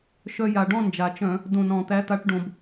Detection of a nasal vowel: present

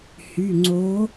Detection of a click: present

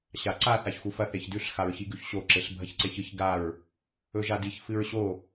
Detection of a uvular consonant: absent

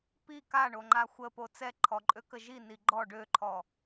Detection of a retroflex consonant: present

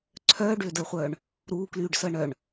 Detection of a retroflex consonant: present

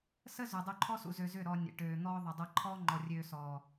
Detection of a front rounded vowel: present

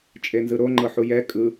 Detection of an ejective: present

